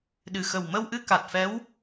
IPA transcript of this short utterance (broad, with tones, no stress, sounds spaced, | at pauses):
ɗ ɨ˨˩ x ə˨˩ w m ə˧ w ʔ ɨ˧ k a˨˩ t̚ f ɛ˧˥ w